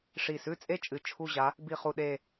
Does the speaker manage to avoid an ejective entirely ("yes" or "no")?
no